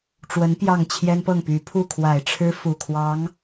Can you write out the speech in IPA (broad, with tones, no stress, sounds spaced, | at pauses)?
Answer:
ʈ͡ʂ w ə˧˥ n p j ɑ˥˩ ŋ t͡ɕʰ j ɛ˥ n p ɤ˥˩ ŋ p y˧˥ pʰ u˥˩ kʰ w a˨˩ ɪ̯ ʈ͡ʂʰ ɻ̩˥ f u˨˩ kʰ w ɑ˧˥ ŋ